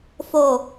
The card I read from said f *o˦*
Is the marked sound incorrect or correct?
incorrect